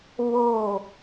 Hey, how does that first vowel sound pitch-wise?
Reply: falling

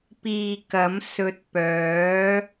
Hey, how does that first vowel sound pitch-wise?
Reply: low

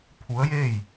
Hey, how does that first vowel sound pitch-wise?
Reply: rising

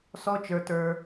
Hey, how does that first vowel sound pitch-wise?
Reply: high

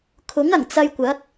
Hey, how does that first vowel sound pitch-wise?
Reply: rising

